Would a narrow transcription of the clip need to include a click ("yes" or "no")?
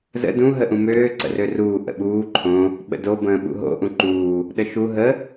yes